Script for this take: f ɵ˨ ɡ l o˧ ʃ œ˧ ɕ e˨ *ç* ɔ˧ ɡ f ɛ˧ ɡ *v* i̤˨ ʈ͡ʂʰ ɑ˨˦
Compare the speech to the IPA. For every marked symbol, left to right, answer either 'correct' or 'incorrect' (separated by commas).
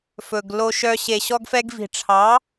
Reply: incorrect, correct